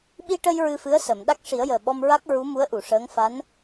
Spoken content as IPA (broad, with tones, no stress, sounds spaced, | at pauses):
ɓ i˧ ʈ ə˧ j ɹ ɨ˧ f ɨ˧˥ ə̯ s ə˨˩˨ m ɗ a˦˥ k̚ ʂ i˨˩˦ ə̯ j əː˨˩ ɓ ɔ˧ m ɹ a˦˥ k̚ ɹ u˧˥ m u˧˥ ə̯ ʔ u˨˩˨ ʂ əː˧˥ ŋ f a˧˥ n